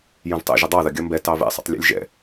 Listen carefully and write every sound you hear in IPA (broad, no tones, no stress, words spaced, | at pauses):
jə̃vtˤɛ̰ ʒədˤɑðɐ ɡʲɐmbɛ tɑvɛ̰sˤə̰tˤ lʲɛ̰lʲʒɛ̰